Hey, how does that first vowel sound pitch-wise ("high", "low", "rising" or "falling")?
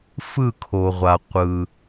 falling